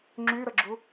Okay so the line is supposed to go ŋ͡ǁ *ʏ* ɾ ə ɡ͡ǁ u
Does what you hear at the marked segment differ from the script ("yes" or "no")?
yes